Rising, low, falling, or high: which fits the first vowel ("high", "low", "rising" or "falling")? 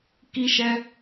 high